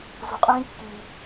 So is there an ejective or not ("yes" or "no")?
yes